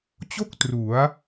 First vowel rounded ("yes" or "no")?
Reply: yes